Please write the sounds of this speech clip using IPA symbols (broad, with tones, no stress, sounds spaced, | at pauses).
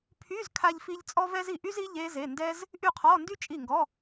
pʰ y˧˥˧ z kʰ a˥ ʎ f i˥ ʎ t͡sʼ ɔ˥ v ɛ˥ z i˥˩ ʔ y˥ z i˧˥˧ ʎ e˥ z e˧˥˧ n d ɛ˥ z | ʔ y˥˩ qʰ ɔ˧˥˧ n d y˥ t͡ʃʼ i˥˩ ŋ ɡ ɔ˧˥˧